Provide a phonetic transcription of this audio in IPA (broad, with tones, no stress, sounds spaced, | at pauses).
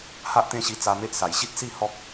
h a˦ ʔ t̪ ẽ˦ ɕ i˧ t͡s a˧ m e˦ ʔ s a˨˩ j ɕ i˦ t̚ s i˥˧ h ɔ˦ k̚